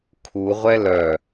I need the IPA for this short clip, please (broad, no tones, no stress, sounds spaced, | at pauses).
kʰ u ʁʷ ɛ l œ